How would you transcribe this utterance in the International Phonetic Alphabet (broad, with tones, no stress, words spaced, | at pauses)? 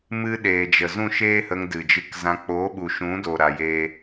mɨ˦ ɗeː˨d͡ʒə˨zũ˦˨ ʃeː˦hə˧ŋ dɨ˨d͡ʒɨ˧kzã˧ k͡po˨˦ ɓu˨ʃũ˨˦do˨ ɾa˧jeː˦